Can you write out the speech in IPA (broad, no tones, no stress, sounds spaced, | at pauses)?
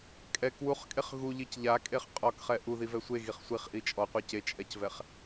kʼ ɛ k w u χ kʼ e χ ɣ u ʎ i c ʎ a kʼ e χ qʼ ɔ k χ ɛ ʔ u ð i v ɛ sʷ e ɣ i χ sʷ i χ ʔ i t͡ʃʼ ɔ qʷ ɛ c e t͡ʃʼ ɛ c v ɛ χ